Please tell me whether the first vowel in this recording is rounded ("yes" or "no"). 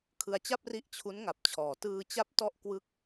no